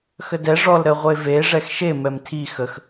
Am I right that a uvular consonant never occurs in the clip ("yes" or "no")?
no